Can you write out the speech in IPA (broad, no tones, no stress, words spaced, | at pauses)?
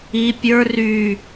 i pʲə˞ ry